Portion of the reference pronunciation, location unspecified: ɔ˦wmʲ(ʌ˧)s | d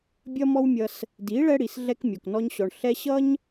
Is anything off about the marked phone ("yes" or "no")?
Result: no